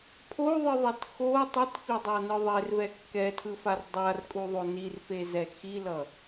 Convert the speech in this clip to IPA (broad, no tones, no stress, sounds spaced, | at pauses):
pʰ o ðˤ ɯ ðˤ ɛ t x o tˤ i t f i dˤ a n ɯ ðˤ e r v ɛ kː ɛ tʰ ɯ f a r dˤ a r kʼ u ðˤ o n i r f e z ɛ x i l ʌ